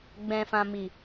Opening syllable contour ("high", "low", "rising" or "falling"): low